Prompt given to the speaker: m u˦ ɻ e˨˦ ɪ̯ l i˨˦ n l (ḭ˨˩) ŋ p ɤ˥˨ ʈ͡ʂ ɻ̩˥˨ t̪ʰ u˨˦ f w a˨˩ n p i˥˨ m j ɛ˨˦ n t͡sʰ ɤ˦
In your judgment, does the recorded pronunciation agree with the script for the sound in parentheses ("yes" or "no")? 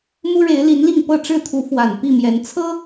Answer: no